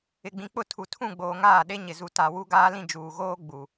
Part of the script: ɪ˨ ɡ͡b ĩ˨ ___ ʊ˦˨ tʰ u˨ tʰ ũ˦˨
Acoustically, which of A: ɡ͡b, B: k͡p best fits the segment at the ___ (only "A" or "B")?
B